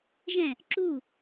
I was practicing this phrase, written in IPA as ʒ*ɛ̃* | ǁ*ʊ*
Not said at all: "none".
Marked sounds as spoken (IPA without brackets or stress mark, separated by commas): ɛ̃, u